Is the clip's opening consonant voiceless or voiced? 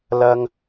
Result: voiced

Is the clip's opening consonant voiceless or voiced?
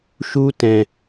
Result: voiceless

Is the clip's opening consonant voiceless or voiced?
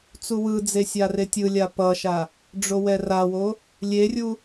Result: voiceless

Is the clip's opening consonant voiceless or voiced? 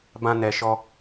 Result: voiced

